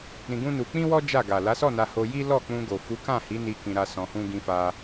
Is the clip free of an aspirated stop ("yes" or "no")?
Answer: yes